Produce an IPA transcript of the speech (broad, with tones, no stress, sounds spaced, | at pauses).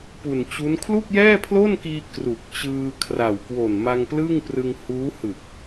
p u˨˩ n t͡ɕ u˦˥ n kʰ l u˥˩ k̚ j ɛː˥˩ pʰ l o˥˩ n k iː˧ k r u˨˩ k̚ t͡ɕ ɯː˧ kʰ r a˨˩ w k w o˨˩ n m a˧ ŋ p l ɯ˥˩ ŋ p r ɯ˧ ŋ h uː˦˥ h ɯ˨˩ k̚